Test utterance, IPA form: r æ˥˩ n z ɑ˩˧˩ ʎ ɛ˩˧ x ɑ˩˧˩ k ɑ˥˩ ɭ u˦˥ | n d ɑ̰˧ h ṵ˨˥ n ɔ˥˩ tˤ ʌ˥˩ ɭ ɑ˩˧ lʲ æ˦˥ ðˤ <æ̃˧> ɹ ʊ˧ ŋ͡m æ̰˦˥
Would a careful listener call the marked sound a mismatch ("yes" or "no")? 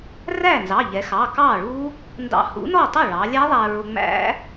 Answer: yes